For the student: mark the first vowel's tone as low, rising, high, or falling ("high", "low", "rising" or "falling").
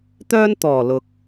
high